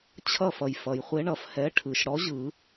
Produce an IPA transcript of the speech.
t͡ɕʰ ʌ˥˨ f ʌ˩ j f ʌ˩ j χʷ e˨˥ ɳ ʌ˩ f h ɛ˨˥ ʈʰ ɯ˩ ʃ ɽ ɔ˨˥ ʑ ɯ˨˩˦

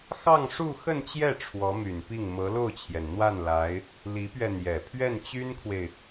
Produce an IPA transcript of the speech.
x ɑ˥˧ ŋ ʂ u˥˧ x ə˥˧ n t͡ɕ j ɛ˥˩ ʈ͡ʂʰ w ɔ˧˥ m y˨˩ n p i˥˩ ŋ m ɤ˧˥ l o˥˩ ʊ̯ t͡ɕʰ j ɛ˩ n n̪ w a˥˩ n l a˧˥ ɪ̯ | l i˧˥ p ɥ ɛ˧ n̪ j ɛ˨˩ pʰ ɥ ɛ˥˩ n t͡ɕ y˥ n kʰ w e˨ ɪ̯

